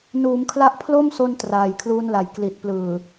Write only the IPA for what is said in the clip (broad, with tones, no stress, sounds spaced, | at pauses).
n uː˩˦ m kʰ l a˦˥ ʔ pʰ l o˥˩ m s o˧ n t r aː˨˩ j kʰ l uː˦˥ n l a˩˦ j k l i˨˩ t̚ p l ɯː˨˩